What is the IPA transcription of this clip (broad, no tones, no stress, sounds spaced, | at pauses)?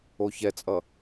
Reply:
o ç ɛ t͡sʼ ʌ